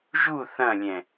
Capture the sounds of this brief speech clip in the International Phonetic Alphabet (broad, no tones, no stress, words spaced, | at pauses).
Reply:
ʒu θɐ̃lʲɛ̃